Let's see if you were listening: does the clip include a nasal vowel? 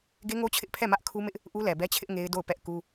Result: no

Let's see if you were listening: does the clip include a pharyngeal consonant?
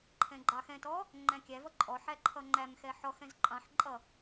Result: yes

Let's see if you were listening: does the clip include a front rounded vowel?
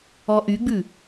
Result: yes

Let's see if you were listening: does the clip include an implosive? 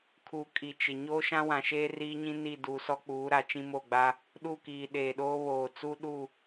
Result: yes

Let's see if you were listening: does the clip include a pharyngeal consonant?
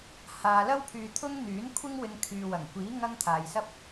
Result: no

